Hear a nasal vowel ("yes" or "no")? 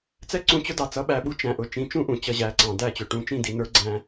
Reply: yes